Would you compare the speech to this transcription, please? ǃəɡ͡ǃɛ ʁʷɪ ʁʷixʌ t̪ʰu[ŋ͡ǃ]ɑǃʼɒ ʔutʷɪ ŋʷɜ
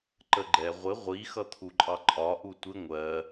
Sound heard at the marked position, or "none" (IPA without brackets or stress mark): ǃʼ